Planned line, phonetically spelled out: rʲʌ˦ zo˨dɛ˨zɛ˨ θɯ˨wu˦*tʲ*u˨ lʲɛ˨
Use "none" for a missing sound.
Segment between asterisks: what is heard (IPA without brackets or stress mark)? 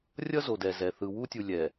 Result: tʲ